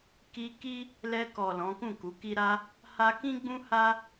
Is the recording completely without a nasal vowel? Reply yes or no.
no